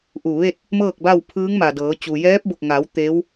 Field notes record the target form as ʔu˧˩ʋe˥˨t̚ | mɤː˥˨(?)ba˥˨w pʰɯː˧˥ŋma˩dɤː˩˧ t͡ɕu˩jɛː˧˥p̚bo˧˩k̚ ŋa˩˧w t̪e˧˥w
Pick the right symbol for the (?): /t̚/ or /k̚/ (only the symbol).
k̚